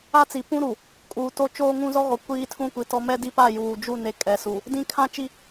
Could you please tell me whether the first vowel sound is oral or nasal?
oral